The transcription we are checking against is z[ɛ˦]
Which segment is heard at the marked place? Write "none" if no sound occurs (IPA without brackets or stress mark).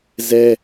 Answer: ɛ˦